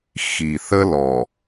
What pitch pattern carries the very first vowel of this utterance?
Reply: low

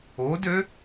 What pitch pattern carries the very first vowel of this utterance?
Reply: rising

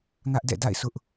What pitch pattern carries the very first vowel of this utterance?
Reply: high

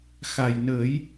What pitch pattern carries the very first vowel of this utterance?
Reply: low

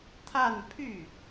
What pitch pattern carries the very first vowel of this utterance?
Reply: falling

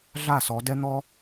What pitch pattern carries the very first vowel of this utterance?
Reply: falling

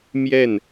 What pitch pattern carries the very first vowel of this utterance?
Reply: falling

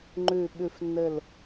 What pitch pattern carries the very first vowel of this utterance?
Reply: falling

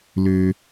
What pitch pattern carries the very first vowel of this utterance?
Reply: low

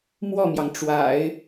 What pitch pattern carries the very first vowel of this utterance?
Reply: falling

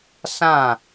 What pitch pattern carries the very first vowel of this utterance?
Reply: falling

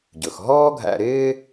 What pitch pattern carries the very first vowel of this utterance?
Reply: low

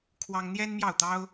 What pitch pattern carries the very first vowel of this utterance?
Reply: high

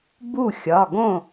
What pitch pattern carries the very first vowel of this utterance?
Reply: falling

